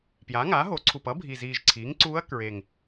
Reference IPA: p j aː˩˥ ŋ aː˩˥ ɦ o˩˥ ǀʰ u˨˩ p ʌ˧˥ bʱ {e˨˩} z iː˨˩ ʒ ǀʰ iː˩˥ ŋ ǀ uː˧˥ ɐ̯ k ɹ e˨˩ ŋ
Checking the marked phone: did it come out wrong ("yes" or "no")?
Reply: yes